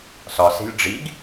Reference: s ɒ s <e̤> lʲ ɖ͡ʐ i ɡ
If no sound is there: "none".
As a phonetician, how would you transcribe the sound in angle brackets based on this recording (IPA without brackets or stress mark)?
e̤